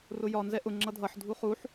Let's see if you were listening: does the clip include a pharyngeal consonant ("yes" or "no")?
yes